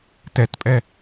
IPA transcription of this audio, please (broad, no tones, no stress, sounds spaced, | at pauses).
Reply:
t ɛ t pʼ ɛ